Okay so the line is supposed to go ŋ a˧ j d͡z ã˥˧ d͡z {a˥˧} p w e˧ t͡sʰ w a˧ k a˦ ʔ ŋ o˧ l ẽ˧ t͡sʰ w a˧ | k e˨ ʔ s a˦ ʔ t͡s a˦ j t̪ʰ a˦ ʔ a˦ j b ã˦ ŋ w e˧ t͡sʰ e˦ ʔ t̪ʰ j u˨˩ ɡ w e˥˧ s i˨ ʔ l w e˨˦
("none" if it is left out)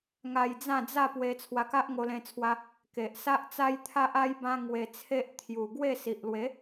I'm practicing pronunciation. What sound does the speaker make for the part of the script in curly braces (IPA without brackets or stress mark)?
a˥˧